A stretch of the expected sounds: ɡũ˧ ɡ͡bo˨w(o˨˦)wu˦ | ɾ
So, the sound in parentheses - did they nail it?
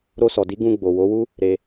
yes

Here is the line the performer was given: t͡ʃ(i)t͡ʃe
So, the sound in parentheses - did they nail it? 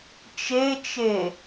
no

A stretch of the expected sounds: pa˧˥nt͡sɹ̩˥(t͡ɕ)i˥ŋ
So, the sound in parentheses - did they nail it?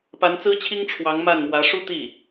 no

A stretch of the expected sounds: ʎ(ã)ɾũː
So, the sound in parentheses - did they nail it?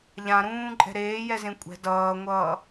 yes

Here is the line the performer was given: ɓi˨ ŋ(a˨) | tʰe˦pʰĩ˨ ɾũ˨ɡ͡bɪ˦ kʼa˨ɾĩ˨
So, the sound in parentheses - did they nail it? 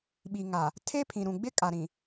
yes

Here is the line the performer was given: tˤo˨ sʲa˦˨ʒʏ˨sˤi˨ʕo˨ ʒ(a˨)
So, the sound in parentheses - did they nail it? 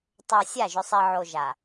yes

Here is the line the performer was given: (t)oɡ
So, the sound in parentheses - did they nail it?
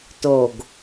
yes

